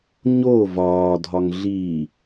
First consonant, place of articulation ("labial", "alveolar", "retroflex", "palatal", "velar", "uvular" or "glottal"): palatal